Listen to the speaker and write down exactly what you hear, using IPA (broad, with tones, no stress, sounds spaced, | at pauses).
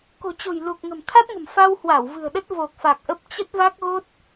k o̤˨˩ t͡ɕ o̤˨˩ j l u˨˩ k̚ ŋ ə̤˨˩ m t̪ʰ a˦˥ t̚ ŋ ə̤˨˩ m f a˧ w h w a˧˩ w v ɨ̤˨˩ ə̯ ɗ ə˦˥ t̚ v o˨˩ k̚ f a˨˩ k̚ ʔ ə˦˥ p̚ t͡ɕ ə˦˥ t̚ v a˦˥ k̚ ɣ o˦˥ t̚